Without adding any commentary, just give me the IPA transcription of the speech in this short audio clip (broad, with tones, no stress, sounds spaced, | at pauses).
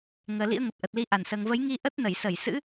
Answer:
ŋ əː˨˩ l ḭ˧˥ ə̯ ŋ ə˨˩ p̚ ʔ ə˨˩ t̚ l i˨˦ ʔ a˧˩ n s əː˨˩ ŋ v ə˨˦ j ŋ i˧ ʔ ə˦˥ t̚ n ə˧˩ j s ə˧˩ j s ɨ̰˧˥